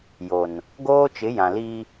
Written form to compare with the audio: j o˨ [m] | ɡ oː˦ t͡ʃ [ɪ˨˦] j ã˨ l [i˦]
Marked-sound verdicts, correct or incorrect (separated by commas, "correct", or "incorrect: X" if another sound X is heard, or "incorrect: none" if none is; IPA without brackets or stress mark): incorrect: n, correct, correct